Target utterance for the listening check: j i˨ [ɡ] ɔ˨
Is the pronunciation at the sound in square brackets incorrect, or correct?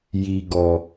correct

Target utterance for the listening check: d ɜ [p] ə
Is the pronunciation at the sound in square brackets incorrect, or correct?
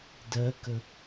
incorrect: k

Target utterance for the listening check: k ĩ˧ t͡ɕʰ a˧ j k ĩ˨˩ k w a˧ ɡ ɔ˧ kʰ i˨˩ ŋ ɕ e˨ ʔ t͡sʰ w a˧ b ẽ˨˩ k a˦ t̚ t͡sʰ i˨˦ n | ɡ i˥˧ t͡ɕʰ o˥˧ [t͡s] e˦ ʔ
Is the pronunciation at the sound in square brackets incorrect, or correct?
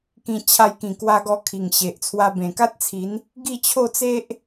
correct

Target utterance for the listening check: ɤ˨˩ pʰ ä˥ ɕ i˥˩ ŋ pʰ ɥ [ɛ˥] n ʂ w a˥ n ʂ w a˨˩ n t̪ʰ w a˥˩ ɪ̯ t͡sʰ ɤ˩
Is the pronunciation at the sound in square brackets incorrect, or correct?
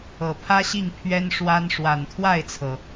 correct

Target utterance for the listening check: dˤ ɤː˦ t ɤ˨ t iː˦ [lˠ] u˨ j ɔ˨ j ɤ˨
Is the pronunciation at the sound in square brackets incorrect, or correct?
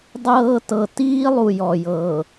correct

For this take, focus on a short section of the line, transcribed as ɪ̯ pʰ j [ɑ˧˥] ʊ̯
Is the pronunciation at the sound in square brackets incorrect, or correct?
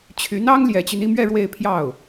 incorrect: ɑ˥˩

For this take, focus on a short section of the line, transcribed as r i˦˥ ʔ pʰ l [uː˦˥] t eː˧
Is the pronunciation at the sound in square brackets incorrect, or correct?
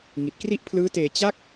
incorrect: ɯː˦˥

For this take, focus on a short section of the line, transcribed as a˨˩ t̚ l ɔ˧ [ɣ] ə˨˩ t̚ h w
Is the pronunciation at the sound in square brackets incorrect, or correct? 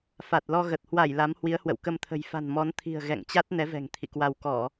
correct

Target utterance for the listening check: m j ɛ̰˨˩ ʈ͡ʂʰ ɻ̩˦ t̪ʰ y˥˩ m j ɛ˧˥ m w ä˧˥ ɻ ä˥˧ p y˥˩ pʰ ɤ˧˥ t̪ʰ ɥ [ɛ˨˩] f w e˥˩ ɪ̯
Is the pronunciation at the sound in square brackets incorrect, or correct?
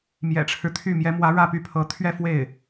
incorrect: ɛ˥˧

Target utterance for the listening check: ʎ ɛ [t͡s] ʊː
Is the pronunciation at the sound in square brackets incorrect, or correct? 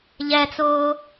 correct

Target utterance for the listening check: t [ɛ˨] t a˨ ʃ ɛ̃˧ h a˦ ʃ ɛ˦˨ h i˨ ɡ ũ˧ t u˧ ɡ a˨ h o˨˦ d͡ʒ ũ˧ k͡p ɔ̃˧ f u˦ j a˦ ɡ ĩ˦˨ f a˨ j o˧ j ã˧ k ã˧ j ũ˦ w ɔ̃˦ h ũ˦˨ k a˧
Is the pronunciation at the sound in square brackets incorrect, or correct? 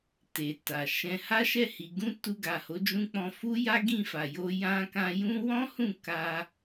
incorrect: e˨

